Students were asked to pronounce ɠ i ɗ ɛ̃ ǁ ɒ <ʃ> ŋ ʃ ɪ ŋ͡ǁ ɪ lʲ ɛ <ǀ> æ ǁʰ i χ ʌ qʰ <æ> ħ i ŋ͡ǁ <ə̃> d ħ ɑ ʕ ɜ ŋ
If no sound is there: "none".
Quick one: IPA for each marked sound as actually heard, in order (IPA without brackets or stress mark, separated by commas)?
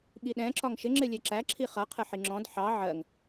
none, ǁ, ə, ɔ̃